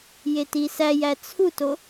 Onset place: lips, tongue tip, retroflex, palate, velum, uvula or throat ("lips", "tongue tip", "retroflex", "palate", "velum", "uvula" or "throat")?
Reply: palate